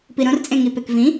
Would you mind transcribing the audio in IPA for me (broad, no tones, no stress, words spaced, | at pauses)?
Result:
piɾõrt͡sʼẽŋi pekvĩ